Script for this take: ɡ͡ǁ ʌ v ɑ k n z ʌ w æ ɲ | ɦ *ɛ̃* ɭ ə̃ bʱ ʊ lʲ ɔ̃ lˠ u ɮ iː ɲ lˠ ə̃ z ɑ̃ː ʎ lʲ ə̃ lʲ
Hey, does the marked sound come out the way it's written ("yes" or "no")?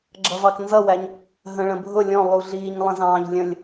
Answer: no